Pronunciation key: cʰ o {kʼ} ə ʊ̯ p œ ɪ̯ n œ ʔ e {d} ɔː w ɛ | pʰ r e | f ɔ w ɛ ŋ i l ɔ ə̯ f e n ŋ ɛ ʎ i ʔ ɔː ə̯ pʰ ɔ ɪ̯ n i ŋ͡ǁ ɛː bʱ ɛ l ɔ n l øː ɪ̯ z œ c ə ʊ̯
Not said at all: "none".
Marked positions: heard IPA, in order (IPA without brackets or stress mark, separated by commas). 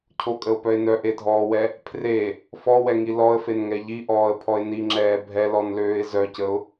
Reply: kʼ, dʱ